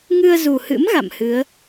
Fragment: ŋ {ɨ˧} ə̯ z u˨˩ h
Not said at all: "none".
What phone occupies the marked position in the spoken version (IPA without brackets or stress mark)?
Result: ɨ˧